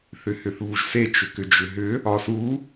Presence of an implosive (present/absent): absent